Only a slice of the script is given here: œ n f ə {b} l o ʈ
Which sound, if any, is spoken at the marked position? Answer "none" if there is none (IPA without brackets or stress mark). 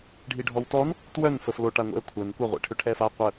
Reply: f